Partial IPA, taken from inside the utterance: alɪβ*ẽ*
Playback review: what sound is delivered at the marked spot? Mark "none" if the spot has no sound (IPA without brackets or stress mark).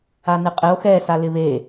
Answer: e